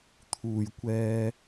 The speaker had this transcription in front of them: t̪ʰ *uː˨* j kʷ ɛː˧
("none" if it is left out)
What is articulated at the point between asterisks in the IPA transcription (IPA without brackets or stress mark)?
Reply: uː˨